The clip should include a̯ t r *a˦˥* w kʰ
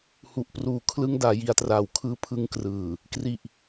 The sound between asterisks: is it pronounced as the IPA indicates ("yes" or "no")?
no